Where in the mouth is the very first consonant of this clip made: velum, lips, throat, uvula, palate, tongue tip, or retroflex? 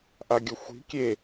throat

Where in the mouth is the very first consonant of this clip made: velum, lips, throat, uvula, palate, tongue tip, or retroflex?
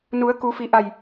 tongue tip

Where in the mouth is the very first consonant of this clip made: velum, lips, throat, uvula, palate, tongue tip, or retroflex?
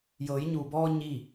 palate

